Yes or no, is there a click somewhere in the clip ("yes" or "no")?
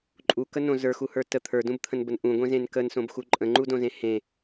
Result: yes